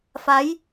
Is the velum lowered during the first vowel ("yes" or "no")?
no